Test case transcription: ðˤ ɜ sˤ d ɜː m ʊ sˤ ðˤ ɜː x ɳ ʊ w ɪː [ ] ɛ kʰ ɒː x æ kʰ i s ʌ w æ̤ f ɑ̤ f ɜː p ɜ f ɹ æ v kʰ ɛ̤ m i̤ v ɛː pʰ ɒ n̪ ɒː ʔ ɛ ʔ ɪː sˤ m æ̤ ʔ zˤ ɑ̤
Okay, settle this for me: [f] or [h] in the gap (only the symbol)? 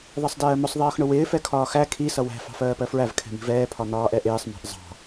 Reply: f